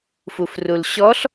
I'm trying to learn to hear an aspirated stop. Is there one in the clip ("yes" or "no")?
no